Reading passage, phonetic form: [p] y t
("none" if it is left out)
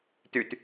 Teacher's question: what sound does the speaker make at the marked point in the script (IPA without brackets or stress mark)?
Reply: t